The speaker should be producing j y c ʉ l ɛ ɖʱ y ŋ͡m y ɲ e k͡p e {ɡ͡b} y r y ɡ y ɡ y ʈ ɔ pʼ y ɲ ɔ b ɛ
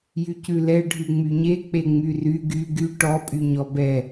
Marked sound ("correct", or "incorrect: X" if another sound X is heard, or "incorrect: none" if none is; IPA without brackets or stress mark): incorrect: ŋ͡m